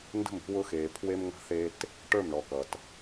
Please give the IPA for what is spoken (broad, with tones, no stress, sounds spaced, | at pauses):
n d ə̤˦˨ m i̤˦ w ʊ˦ x eː˨ pʰ w e˦ m ŋ ə̤˦ θ e˦ t | ʈ ə˞˦˨ m ɳ ɔ˨ k ʌ˨ t